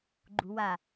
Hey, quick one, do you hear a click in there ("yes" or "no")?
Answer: yes